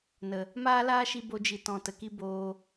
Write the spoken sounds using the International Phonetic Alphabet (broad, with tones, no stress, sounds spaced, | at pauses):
n ə˨ | m aː˦ l aː˦ ʃ i˧ b o˧ d͡ʒ i˨ t ɔ̃˨ t ə˨ k i˦ b oː˧